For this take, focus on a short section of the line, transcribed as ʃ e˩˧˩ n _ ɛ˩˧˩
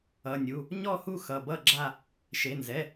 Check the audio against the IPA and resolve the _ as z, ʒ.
z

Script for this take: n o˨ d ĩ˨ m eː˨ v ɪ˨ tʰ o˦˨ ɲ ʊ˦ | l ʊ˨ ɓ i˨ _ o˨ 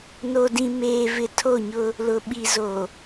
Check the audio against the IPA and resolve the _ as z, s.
z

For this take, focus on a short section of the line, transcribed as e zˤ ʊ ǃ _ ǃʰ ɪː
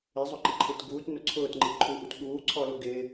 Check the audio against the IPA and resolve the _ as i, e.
i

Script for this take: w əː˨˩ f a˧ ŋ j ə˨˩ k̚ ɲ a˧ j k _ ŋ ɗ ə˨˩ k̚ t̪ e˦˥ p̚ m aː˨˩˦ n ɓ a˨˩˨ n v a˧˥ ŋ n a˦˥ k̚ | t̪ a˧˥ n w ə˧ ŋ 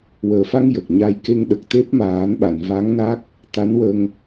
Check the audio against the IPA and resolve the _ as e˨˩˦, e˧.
e˧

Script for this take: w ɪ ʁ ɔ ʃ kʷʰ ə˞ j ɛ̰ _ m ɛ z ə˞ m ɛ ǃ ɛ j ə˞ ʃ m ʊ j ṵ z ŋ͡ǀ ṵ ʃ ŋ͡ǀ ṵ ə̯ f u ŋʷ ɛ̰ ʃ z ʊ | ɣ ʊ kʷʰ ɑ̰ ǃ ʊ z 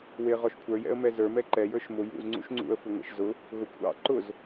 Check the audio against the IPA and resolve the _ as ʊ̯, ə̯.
ə̯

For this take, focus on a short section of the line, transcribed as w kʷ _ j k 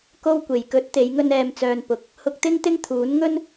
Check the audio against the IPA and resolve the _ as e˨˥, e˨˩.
e˨˩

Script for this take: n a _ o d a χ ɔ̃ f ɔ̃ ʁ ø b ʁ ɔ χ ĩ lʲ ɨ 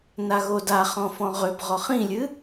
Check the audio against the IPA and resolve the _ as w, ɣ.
ɣ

